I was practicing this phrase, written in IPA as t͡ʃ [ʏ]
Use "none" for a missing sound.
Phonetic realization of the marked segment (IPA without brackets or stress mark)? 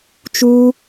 u